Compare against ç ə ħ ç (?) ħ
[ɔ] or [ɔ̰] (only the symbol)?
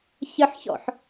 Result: ɔ̰